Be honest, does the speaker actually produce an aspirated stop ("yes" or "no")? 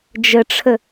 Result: yes